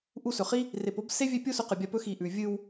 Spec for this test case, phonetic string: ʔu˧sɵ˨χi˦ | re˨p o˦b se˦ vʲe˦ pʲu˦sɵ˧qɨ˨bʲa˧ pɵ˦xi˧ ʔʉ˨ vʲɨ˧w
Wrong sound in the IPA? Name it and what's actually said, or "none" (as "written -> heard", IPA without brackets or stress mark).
none